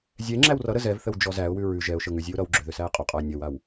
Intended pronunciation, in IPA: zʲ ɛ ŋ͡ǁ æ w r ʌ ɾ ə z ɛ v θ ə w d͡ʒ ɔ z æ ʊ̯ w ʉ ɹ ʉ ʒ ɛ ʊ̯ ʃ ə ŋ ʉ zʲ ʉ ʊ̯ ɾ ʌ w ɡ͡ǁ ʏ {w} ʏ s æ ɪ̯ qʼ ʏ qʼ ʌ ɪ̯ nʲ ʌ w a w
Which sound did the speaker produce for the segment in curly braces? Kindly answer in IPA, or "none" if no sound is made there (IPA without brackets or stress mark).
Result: ð